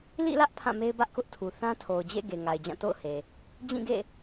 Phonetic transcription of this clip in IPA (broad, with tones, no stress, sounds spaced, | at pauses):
l ḭ˦˨ l ä˦ ʔ pʰ ã˦˨ m e˦ ɪ̯ b ä˦ ʔ k ʊ˦ ʔ tʰ u˨ θ ã˦ tʰ o˨ ʊ̯ d͡ʑ ḛ˦˨ ɡ e˨ ŋ a˨ ɪ̯ d͡ʑ ã˦˨ t o̰˦˨ ʊ̯ h e˨ | d͡ʑ ĩ˦˨ ɡ ḛ˦˨